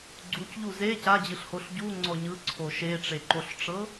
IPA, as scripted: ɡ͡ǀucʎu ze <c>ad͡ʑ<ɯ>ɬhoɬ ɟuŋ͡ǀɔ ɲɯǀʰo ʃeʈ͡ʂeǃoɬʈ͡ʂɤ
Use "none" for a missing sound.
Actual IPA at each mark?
c, ɯ

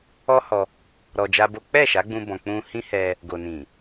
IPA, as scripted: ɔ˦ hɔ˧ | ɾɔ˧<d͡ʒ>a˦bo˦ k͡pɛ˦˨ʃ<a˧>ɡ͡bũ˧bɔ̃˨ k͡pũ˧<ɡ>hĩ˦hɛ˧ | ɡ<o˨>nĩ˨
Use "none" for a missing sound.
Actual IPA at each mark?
d͡ʒ, a˨˦, none, o˨

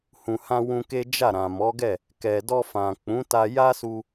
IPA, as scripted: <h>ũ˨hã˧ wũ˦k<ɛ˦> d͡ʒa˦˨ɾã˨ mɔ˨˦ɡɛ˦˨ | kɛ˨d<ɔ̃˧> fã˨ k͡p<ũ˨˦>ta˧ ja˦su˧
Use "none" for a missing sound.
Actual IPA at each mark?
h, e˦, ɔ˧, ũ˨˦

